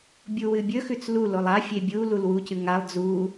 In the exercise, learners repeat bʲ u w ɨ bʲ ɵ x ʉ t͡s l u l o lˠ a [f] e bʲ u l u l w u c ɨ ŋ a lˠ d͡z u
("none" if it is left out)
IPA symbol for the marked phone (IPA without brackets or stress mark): fʲ